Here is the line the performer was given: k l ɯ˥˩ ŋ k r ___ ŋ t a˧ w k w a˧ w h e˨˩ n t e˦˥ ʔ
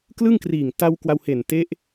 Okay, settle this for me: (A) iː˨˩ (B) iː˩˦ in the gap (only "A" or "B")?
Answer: A